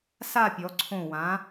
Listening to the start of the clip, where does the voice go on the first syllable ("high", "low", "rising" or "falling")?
falling